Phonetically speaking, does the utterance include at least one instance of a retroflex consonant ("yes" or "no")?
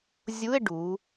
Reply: yes